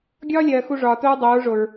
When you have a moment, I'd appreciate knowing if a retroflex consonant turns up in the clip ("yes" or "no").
yes